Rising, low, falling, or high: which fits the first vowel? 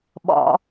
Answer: low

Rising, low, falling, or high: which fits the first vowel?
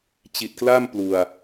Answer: low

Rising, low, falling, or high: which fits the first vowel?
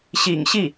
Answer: low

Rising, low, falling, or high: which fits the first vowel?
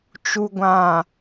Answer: low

